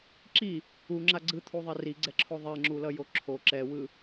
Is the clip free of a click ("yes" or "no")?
no